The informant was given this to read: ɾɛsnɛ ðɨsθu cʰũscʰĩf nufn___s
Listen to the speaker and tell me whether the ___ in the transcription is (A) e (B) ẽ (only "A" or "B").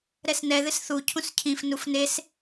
A